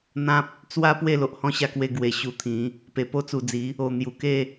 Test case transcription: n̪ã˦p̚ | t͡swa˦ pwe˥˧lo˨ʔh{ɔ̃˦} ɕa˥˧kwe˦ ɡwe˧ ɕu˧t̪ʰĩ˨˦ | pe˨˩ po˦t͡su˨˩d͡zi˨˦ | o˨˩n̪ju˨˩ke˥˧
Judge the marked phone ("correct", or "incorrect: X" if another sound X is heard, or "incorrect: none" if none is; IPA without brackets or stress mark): correct